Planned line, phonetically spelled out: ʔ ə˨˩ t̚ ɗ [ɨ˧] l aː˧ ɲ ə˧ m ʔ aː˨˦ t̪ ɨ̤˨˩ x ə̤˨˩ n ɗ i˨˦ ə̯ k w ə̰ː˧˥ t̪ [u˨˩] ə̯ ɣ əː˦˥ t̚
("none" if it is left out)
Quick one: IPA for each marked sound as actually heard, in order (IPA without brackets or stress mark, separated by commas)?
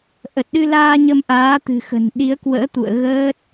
ɨ˧, ṵ˧˨